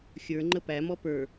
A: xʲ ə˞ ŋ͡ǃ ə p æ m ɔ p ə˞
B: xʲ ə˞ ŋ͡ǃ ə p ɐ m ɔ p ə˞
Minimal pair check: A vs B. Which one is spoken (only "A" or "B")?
A